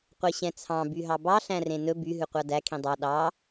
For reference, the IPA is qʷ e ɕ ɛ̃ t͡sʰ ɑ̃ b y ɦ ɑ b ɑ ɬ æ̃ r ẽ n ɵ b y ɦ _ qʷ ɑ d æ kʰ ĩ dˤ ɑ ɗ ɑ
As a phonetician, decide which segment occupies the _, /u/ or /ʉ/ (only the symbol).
ʉ